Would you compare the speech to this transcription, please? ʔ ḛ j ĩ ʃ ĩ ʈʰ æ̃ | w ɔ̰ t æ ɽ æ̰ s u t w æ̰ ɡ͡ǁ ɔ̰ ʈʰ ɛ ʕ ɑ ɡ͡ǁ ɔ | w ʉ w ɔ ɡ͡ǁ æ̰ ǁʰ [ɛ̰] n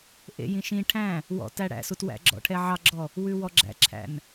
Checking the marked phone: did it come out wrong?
yes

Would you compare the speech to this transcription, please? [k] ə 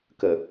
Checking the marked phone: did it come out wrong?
no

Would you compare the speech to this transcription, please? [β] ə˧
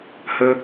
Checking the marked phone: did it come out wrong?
yes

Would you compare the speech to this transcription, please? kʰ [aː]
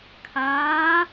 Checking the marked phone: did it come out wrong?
no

